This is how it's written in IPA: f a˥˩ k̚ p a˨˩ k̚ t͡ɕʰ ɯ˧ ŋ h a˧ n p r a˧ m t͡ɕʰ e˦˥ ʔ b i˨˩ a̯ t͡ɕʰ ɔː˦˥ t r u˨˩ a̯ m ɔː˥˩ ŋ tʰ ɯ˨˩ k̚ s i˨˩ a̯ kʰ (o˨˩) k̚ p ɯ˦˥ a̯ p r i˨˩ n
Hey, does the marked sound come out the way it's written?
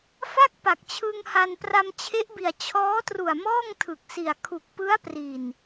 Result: no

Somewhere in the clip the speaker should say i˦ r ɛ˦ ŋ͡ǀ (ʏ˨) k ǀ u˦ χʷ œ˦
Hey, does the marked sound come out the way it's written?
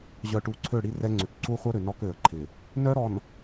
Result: yes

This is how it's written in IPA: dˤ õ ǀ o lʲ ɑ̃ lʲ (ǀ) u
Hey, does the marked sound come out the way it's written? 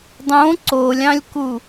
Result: no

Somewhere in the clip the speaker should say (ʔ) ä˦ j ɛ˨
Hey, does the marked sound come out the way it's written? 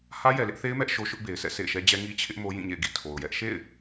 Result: no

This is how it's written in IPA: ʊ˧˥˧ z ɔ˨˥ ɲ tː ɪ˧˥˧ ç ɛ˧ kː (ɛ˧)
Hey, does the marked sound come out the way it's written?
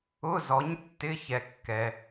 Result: yes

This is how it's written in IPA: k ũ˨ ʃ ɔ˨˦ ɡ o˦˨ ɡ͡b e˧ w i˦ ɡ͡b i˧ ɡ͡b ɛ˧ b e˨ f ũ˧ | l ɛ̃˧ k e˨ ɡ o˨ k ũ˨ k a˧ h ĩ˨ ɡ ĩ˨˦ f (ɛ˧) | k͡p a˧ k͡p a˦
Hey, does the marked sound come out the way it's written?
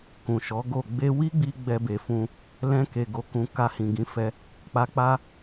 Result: yes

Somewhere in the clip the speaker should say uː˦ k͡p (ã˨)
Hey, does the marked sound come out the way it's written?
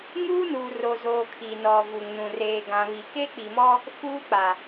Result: no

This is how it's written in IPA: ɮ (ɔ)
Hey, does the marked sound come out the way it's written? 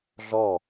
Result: yes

